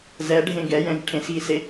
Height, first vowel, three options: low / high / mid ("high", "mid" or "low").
mid